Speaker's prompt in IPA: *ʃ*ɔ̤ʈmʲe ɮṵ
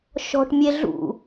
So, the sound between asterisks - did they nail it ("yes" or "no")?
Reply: yes